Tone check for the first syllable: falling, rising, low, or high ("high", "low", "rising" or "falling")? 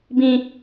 high